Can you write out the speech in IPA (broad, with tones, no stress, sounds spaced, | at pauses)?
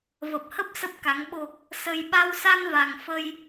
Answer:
v ə˨˩ p̚ h ə˦˥ p̚ s ə˦˥ p̚ k a˨˦ ŋ ɓ o˨˩ k̚ | s ə˨˩ j ɓ a˧ w s a˧ n v a˨˩ ŋ f ə˧ j